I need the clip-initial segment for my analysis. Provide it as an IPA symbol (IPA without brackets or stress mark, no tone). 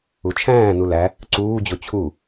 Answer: u